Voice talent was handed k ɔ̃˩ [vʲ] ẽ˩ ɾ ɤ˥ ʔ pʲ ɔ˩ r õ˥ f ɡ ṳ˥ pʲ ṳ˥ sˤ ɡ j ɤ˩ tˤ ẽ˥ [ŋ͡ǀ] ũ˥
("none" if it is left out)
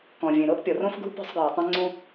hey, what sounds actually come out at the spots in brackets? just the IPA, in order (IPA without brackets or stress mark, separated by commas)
vʲ, ŋ͡ǀ